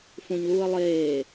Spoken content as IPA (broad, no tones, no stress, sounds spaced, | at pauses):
f ũ ɲ l uː ə̯ lˠ eː